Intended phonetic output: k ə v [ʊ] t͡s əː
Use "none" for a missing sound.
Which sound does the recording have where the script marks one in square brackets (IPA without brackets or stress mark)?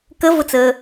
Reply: ʊ